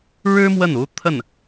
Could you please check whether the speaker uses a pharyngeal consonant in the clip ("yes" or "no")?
no